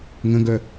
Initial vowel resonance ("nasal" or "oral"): nasal